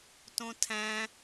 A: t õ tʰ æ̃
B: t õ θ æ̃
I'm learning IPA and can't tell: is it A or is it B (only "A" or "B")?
A